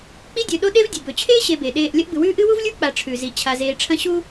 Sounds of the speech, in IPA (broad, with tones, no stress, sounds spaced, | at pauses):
k͡p i˦ dʲ ɵ˨ ɗ o˦ ɗ e˦ v dʲ ʉ˩ b ɵ˩ t͡ɕʰ eː˥ ɕ e˨ b e˩ ɗ eː˨ ʔ lʲ ɐ˦ ʔ b ɨ˨ w ʉː˥ ʔ ɨ˥ w u˥ v lʲ u˥ k͡p a˨ ʈ͡ʂʰ ʉ˩ z i˩ t͡ɕʰ a˨ z eː˨ ʈ͡ʂʰ ɐ̃˦ ɕ u˥